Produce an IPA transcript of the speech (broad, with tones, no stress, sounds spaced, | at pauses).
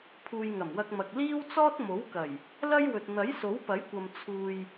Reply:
pʰ uː˨ j ŋ ɐ˨˩ m w ɐ˧ k̚ m ɐ˨ k̚ l iː˥ w t͡s ɔː˥ t̚ m o˨˥ w k ɐ˨˩ j | l ɐ˥ j w ɵ˨ t̚ n̪ ɐ˨˥ j s o˨˥ w p ɐ˨˥ j kʷ ɐ˨ m t͡sʰ uː˧ j